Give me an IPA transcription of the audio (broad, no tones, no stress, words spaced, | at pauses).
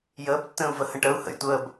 jəːbtːə̃ːu̯və hə̃ʈəu̯ hə̰jtʷəːb